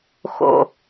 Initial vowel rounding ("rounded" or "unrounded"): rounded